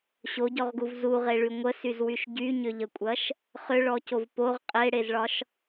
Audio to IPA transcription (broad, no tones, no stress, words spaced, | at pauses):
ɕoɟɔʁɡuv zuʁeɭy ŋʷəsyzwyʃ ɟyɲʏʎəkʷʼɐʃ | χʏɭɔcov poʁ qʼeɽezɭɒʃ